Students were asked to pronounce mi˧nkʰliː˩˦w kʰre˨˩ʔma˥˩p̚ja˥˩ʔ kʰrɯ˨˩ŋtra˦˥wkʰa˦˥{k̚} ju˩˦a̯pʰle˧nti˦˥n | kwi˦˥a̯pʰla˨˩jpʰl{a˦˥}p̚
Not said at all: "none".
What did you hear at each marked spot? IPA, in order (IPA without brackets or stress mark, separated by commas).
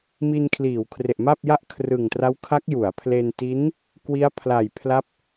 k̚, a˦˥